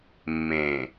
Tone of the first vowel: low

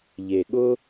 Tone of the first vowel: low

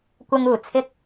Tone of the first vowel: high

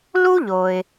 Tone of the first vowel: high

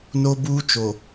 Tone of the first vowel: high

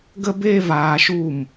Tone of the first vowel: high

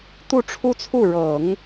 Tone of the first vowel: falling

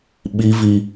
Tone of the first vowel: high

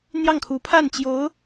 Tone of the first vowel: falling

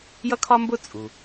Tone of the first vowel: high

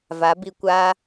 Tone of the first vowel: rising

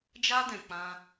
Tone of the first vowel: high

